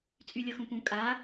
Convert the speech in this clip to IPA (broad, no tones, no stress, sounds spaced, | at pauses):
t͡sʼ y lʲ ɤ x ũ p ũ kʼ a